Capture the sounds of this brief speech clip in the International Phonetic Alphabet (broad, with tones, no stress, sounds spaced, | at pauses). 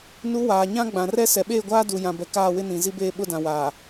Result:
n u˨˦ w aː˨ ɲ ã˦ ɡ͡b ã˨ r ɛ˦ s ɛ˨ ɓ eː˦˨ ɡʷ aː˦ d u˨ j ã˨ b ɛ˨ k aː˦˨ w ɪ˦ n ĩ˨ z i˦ b eː˦ ɓ ʊ˦ d ã˨ w aː˨